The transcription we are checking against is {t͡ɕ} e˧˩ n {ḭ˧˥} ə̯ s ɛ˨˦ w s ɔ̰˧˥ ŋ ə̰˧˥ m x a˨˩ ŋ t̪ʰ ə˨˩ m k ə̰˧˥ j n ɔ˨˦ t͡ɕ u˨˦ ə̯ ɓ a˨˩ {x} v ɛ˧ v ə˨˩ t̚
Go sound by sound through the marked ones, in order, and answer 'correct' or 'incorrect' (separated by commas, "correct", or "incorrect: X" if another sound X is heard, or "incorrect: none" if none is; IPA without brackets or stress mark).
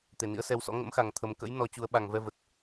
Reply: incorrect: t̪, correct, incorrect: ŋ